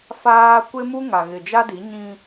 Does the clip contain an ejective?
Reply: no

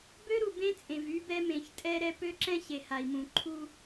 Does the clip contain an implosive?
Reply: no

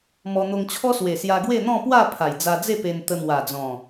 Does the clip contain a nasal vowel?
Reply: yes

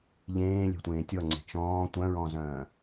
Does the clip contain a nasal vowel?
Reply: yes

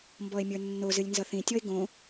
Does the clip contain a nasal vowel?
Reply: yes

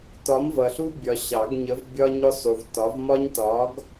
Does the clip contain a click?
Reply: no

